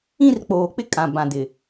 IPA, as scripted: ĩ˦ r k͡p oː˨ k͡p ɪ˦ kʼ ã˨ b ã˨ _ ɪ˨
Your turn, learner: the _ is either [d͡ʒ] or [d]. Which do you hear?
d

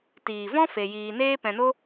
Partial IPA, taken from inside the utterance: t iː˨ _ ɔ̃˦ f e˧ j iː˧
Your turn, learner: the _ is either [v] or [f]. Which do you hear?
v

